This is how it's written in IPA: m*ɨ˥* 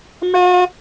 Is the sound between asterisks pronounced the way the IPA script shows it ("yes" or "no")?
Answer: no